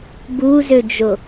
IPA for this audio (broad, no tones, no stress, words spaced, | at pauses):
buzød͡ʒo